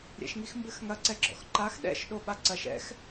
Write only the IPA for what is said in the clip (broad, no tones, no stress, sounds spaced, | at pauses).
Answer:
ɾʲ ɛ̰ ʃ ŋ i x m b ɘ x ŋ ɐ ǀ ɛ ɡ͡ǁ ɔ̰ x ǃ a x ɗ ɛ̰ ʃ ɗ o ɓ a ǀ ɐ ʃ ɛ̰ x